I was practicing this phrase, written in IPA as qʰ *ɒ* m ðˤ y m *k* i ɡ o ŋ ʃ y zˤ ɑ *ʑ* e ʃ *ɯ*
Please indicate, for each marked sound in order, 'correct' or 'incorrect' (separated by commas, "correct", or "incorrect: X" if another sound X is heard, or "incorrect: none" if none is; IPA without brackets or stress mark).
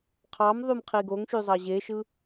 incorrect: ɑ, incorrect: qʰ, correct, correct